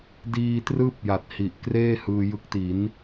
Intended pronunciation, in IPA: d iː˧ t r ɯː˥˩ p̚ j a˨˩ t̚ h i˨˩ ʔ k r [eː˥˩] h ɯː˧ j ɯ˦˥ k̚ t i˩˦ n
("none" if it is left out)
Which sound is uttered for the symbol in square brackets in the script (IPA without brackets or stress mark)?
eː˥˩